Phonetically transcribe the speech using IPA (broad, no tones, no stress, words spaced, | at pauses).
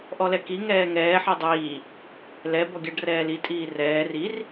ʔɔlɛki ŋɛːŋɛː ħidˤiː | lɛ bɔɡʲaɖrɛːli tʼiːrɛː rir